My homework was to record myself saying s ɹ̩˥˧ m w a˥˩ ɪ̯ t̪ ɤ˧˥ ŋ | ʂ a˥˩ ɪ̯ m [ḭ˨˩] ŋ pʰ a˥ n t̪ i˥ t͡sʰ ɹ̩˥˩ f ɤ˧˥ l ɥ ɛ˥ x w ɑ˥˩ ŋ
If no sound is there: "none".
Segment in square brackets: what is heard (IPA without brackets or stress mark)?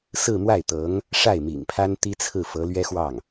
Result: ḭ˨˩